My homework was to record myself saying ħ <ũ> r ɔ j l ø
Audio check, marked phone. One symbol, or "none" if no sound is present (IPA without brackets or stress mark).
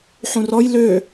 ũ